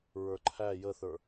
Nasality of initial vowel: oral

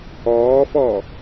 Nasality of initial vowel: oral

